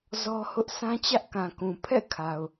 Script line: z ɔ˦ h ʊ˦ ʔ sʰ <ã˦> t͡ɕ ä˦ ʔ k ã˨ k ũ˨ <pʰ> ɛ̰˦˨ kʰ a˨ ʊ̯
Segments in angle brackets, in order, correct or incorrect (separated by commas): correct, correct